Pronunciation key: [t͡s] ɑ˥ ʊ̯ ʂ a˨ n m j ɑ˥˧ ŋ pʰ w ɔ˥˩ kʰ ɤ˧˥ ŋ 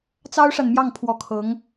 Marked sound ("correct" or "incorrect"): correct